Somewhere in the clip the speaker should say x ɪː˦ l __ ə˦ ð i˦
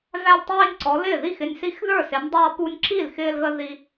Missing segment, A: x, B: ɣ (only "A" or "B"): B